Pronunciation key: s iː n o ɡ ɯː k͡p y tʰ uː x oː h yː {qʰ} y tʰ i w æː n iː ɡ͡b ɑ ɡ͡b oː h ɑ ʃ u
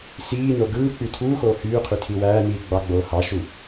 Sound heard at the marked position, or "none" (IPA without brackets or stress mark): qʰ